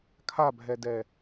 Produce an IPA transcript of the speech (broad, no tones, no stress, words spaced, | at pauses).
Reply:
kʰabʱɛdɛ